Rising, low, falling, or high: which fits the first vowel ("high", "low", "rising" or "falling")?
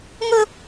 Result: high